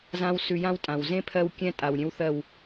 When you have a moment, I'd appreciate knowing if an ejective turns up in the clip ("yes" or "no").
yes